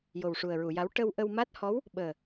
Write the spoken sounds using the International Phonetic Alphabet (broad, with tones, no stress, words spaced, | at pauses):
jo˨˩wʂu˨˩ə̯ɹu˨˩˨ja˧˥w ʈə˧wʔə˧wma˦˥t̚hɔ˧˥w | ɓəː˨˩